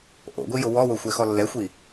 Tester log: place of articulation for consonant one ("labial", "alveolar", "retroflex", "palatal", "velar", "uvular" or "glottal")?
glottal